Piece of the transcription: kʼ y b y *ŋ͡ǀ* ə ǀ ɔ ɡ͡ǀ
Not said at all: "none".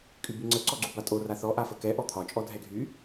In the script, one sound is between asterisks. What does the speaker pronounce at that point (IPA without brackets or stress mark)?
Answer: ŋ͡ǀ